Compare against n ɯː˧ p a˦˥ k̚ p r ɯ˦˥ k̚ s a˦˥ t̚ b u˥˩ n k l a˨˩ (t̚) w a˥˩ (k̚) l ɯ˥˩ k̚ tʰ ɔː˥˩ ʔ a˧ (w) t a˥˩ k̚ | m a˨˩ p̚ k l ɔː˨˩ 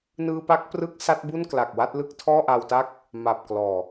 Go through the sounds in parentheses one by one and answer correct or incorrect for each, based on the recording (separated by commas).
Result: incorrect, incorrect, correct